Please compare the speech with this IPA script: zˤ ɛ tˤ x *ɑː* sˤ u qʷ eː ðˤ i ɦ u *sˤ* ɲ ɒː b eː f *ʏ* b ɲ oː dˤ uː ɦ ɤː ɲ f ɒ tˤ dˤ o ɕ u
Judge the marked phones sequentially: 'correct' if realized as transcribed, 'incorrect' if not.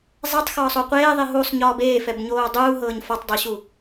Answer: incorrect, correct, incorrect

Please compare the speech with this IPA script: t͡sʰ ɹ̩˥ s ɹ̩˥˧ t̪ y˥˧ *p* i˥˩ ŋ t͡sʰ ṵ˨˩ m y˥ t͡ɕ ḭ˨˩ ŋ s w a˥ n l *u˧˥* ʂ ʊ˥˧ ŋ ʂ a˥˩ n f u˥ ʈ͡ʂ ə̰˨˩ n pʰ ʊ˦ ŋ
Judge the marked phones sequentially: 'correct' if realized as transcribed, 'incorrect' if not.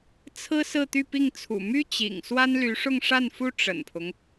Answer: correct, incorrect

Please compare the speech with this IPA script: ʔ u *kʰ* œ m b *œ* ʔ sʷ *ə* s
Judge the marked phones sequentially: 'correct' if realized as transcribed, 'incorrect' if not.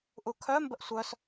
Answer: correct, incorrect, incorrect

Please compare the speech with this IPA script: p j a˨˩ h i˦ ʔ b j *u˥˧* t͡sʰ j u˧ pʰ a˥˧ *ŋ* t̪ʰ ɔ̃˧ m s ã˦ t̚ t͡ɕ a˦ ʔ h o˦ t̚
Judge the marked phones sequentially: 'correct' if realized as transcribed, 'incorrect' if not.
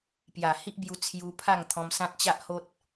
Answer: incorrect, correct

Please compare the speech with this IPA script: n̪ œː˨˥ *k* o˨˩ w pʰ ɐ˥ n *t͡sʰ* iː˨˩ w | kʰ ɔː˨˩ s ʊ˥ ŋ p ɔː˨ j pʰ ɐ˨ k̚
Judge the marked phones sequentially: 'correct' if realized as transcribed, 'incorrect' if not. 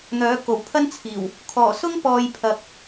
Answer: correct, correct

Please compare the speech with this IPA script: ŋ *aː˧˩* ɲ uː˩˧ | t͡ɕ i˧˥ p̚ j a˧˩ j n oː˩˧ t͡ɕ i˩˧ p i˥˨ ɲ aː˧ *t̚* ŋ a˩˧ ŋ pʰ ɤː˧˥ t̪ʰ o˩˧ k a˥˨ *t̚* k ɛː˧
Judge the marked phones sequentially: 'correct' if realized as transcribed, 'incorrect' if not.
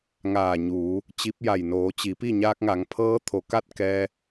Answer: correct, incorrect, correct

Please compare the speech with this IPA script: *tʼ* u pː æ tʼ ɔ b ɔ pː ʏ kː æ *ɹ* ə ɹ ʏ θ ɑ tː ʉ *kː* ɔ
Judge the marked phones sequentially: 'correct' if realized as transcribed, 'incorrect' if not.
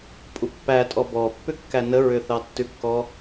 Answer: incorrect, incorrect, correct

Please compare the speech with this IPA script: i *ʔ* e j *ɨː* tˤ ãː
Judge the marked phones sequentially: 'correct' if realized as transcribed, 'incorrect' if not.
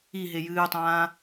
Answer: incorrect, correct

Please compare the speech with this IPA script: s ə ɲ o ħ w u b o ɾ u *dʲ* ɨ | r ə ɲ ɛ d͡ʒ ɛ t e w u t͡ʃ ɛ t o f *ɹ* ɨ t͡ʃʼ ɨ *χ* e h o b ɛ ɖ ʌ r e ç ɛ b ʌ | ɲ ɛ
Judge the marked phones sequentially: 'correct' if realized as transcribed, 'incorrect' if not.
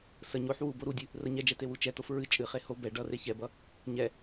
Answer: correct, correct, correct

